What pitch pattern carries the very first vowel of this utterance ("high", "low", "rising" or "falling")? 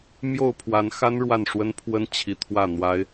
falling